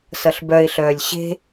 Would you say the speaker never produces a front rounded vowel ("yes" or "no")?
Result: no